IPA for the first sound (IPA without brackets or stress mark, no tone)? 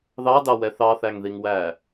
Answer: ð